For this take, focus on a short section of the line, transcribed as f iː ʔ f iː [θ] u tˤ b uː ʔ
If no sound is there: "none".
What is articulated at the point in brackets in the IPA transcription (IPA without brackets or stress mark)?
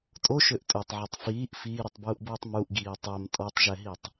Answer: ɾ